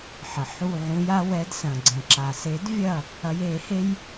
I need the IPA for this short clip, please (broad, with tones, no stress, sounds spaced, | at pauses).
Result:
ħ ə˩ ħ u˧˩ ʕ ũ˨˦ j a˨˦ w ɛ˨˦ d s ɐ̃˩ ɡ͡ǀ ə̃˩ ǁ a˩ s e˨˩˦ d vʲ ɐ˧˩ | ɐ˨˦ j e˨˩˦ h e˦ j